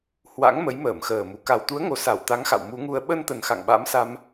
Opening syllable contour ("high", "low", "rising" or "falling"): rising